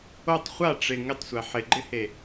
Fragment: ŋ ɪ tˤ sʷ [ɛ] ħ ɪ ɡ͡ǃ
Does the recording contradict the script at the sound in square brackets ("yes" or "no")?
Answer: no